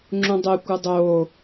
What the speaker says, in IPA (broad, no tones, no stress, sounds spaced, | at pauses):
ŋ͡ǁ ũ dˤ e kʷ ɯ dˤ oː